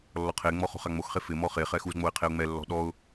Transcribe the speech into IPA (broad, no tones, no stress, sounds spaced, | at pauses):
lː ɔ qʰ e ŋ͡m ɔ χ o̤ χ a ŋ͡m o x χ e f ɪ m ɔ χ e χ ɛ x u z ŋ͡m o ɪ̯ qʰ e ʊ̯ ŋ͡m ɛ lː ɔ̤ ɗ ɔ ʊ̯